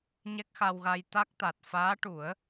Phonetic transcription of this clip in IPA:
ɲ ɛ˦˥ k̚ x a˧ w ɣ a˧ j t̪ a˦˥ k̚ t̪ a˨˩ t̚ f aː˧˥ ʈ u˨˩˦ ə̯

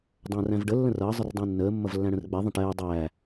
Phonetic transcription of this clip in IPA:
dˤ ə̃ː r æ̃ v ɖ ə lː ə̃ r ʌː zˤ ə r dˤ æ̃ nː əː mː ʌ v lː æ̃ ɽ ə̃ r ɡ͡b ɛ ðˤ ə̃ ʈ ɛː dˤ æː

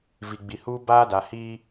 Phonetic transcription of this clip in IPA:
v i˨ ɡ͡b i˨ h uː˦ b aː˦ d a˨ h iː˦

